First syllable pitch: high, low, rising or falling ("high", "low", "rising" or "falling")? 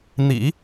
low